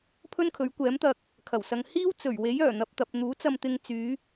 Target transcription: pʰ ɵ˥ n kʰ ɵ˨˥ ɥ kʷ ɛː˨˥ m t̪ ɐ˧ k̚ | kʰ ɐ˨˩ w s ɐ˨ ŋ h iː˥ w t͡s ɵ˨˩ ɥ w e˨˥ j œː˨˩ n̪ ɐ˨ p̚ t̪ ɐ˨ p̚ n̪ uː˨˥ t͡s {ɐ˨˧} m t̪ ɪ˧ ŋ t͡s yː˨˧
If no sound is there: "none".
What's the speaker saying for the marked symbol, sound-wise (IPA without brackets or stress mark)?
ɐ˧